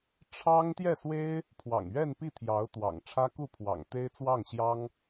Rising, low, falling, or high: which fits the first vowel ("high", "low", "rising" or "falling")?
high